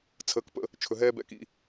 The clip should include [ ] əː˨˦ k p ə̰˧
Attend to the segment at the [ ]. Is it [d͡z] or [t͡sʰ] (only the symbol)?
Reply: t͡sʰ